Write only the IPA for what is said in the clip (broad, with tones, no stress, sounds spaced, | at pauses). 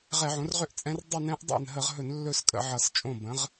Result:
ʁ ɛ˧˩˧ ʕ õ˩˥ r ʁ ʏ˥˧ ʔ t͡sʼ ɛ̃˧˥ r dˤ ʏ˥˧ n ɛ̃˧˥ ʔ dˤ ɛ̰˥˩ n ɦ ə˧˩˧ ʁ ɦ ɵ˧˩˧ n lː ɵ˥˧ s kʼ ə̰˧˩˧ ʕ ʌ˧˩˧ s t͡ʃʼ õ˥˩ b ə̃˩˥ ʁ